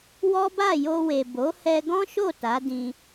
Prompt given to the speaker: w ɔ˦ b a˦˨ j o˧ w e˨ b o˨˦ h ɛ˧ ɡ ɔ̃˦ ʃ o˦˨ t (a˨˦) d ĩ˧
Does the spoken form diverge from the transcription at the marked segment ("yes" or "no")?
no